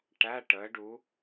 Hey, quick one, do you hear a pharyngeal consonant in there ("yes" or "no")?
no